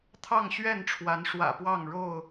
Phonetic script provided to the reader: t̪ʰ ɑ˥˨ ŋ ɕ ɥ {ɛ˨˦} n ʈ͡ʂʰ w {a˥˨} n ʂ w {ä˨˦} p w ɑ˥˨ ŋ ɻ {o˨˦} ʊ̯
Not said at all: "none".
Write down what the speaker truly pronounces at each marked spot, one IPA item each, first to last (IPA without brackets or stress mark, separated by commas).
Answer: ɛ˥˨, a˨˦, ä̰˨˩, o˥˨